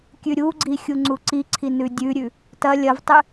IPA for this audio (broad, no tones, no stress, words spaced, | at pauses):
kʲʉɾʲuɡ͡ǀi xʲuŋ͡ǀuǀiǀʰi nʉdʲʉɾʲʉ | tɐ lʲɐvtˤɨ